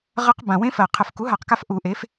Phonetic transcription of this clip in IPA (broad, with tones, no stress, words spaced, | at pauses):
ʁə˦˥q bã˨˩wẽ˦˥fɜ˨˩ qʰə˨˩fku˩˥ɦa˨˩˦qka˧f ʔu˨˩˦ʔe˩˥f